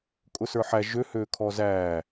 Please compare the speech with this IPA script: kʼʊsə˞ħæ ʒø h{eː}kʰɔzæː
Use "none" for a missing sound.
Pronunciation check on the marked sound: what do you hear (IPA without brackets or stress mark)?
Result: øː